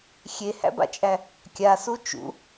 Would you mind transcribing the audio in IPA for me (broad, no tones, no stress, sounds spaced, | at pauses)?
xʲ e h æ̰ b a̰ t͡ʃʼ æ | kʲ a s u t͡ʃ ṵ